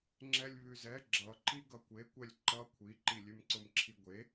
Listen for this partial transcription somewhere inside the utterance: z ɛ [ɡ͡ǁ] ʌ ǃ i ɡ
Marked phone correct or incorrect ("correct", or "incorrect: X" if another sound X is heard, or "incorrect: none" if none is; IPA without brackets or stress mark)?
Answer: correct